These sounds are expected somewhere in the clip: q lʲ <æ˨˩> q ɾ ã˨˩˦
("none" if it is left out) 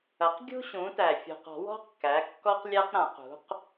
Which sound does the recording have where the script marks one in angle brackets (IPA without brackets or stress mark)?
æ˥